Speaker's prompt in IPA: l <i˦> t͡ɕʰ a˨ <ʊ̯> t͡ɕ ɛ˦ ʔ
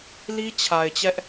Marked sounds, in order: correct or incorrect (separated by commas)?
correct, incorrect